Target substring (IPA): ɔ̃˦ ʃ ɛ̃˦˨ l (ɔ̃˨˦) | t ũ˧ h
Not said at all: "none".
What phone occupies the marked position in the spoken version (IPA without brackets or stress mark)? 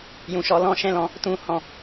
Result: ɔ̃˨˦